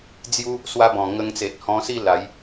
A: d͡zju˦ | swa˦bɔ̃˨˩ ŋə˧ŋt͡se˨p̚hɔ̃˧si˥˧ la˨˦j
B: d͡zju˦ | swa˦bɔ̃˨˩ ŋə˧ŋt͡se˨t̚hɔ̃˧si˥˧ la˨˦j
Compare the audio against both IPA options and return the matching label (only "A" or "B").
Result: B